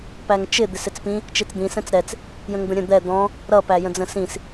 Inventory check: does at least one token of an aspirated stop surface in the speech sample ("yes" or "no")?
no